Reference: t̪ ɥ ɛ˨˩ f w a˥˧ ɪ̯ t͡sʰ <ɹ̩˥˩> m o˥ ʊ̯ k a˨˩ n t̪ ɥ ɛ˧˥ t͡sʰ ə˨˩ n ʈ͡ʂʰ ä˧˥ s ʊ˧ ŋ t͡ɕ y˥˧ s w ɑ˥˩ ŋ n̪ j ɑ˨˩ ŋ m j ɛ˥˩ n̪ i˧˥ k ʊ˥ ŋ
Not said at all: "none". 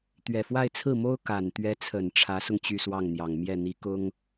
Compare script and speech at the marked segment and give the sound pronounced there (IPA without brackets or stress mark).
ɹ̩˥˩